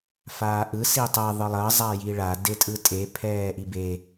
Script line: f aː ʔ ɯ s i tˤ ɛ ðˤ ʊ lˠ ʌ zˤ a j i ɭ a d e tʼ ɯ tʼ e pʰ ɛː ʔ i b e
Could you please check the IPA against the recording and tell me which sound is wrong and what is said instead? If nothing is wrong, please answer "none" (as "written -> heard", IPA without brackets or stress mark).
ʊ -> ɯ